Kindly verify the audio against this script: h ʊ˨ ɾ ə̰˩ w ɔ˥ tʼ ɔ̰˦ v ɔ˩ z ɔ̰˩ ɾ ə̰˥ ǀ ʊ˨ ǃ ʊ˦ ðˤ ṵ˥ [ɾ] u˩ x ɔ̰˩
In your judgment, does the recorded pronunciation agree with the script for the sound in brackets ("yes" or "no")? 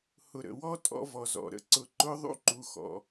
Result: no